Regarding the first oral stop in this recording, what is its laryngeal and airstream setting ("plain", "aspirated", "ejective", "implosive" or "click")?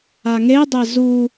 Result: plain